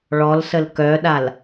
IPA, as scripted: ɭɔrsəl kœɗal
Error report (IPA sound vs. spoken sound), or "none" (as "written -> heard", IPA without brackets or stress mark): r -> l